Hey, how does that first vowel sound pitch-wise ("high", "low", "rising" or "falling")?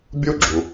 high